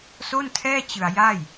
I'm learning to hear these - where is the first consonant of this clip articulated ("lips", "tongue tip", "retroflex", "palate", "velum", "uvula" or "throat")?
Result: tongue tip